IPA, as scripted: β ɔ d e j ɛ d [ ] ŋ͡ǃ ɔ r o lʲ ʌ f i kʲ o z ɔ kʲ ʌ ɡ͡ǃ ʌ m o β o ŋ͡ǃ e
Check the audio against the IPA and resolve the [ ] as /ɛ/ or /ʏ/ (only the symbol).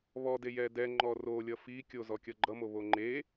ɛ